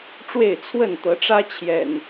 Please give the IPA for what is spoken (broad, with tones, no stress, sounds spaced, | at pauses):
ʈ͡ʂ w e˥˨ ɪ̯ t͡sʰ w ə˥˨ n t̪ ɤ˨˦ ʈ͡ʂ ä˦ t͡ɕʰ j ɛ̰˨˩ n